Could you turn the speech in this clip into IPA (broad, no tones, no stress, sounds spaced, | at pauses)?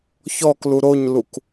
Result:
ç ɔ k l u ɾ o ɲ l u k